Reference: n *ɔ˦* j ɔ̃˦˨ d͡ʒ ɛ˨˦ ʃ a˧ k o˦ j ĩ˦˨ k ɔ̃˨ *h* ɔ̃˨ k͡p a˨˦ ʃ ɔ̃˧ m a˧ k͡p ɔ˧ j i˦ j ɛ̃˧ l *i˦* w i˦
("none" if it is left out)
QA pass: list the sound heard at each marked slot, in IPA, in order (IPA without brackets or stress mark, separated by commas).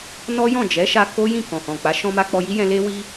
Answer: ɔ˦, h, e˦